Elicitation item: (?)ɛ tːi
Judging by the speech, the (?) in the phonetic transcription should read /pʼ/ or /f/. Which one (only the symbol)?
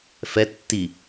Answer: f